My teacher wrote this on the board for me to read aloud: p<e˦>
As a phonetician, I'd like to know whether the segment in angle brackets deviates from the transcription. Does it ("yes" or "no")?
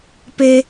no